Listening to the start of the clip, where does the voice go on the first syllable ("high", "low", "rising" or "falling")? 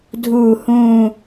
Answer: low